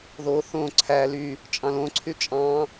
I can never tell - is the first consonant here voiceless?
no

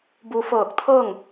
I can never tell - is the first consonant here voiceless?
no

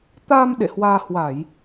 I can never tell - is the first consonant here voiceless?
yes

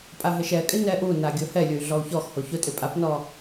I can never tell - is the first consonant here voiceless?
yes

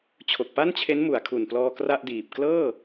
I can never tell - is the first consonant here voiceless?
yes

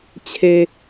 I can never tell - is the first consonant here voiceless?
yes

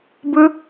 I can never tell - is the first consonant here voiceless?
no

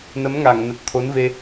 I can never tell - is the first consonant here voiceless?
no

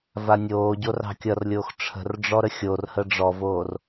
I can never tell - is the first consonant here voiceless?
no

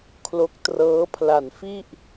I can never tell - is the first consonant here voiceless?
yes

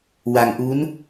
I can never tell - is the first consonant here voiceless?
no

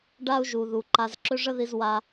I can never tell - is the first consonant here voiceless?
no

